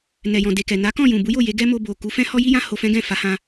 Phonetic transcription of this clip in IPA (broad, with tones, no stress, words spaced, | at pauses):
nɛ˨jɔ̃˨ de˨kɛ˨ na˨˦kɔ̃˦˨ jũ˨bu˨˦jo˦˨ je˨˦ɡɛ˦mo˧ bo˨ ku˨˦fɛ̃˦ hɔ˦ji˦jã˦ ho˧fɛ̃˦ɡɛ̃˦˨ fa˨˦hã˧